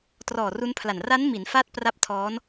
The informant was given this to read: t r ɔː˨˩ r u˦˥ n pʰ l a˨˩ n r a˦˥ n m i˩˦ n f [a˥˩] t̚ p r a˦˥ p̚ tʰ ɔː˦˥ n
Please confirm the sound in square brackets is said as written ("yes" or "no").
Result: yes